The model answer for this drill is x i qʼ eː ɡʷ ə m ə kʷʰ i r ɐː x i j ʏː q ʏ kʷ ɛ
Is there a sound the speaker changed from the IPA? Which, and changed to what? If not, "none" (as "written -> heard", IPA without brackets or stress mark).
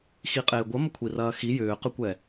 none